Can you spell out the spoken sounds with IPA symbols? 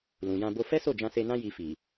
lũ˨jã˧bo˦ fɛ˦so˦˨ d͡ʒã˧se˧nã˦ ji˧fi˨

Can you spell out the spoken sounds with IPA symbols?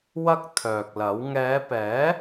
wɐ˥k̚t̪ʰœː˨k̚lɐ˨˥w ŋɛː˨˧pɛː˨˥

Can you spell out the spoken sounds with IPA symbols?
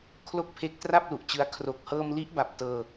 kʰlo˥˩k̚pʰe˦˥k̚ tra˥˩p̚lu˨˩ʔt͡ɕɯ˦˥a̯ kʰro˨˩k̚hɤː˧mli˦˥ʔba˨˩p̚ tɤː˧

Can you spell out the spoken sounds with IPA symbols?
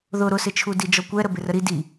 ðʊ ɾʊsɪt͡ʃʰu did͡ʒɔkʷɛ ɾəbɪrəɾi di

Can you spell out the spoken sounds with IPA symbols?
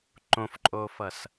ǃõfǃʼoːfʌs

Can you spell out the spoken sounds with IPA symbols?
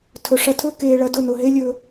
tʰɵ˨ʂɐ˧tʰɵ˦ keː˧ɭɐ˧ dʊ˦˨nʊ˨ɦe˦ lʲɵ˦

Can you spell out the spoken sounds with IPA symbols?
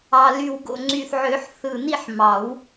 ɑ˨˩ly˨˩wɡo̰˨˩ ŋ͡ǀy˨˩θʕø˨˩˦ħθɯ˨˩ ni˥˨ħmɑ˨˩˦w

